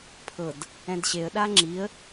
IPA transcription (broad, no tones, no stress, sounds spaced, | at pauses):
pʰ ɤ d | ɛ̃ d ɕ e ə̯ ɗ a ŋ͡ǁ i ə̯